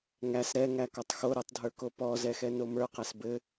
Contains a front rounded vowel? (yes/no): no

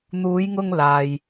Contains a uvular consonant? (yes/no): no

